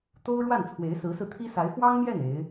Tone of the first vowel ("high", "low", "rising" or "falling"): high